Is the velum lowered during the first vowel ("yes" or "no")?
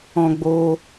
yes